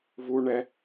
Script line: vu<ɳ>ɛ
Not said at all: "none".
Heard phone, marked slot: ɳ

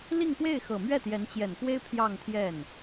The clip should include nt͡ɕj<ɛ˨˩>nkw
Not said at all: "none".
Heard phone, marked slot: ɛ˨˩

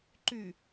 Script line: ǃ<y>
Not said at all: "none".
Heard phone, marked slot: y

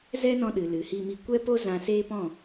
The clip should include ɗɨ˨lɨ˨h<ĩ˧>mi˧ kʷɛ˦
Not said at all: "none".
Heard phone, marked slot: i˧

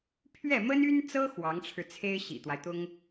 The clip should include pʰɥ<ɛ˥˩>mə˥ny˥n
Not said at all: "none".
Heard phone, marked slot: ɛ˥˩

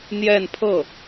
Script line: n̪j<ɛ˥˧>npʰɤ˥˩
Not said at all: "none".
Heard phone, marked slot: ɛ˥˧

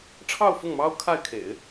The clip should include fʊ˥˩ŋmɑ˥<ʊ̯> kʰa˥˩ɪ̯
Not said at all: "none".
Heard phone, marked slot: ʊ̯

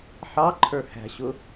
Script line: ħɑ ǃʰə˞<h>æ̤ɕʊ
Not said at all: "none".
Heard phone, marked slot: h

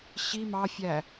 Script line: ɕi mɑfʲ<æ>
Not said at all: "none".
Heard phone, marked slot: æ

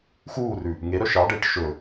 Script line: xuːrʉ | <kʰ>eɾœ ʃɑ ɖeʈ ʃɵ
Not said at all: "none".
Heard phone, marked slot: ŋ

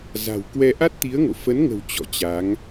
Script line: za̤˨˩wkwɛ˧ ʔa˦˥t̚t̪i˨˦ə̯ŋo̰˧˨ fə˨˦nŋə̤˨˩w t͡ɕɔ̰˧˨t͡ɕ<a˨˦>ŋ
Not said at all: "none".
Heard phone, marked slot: a˨˦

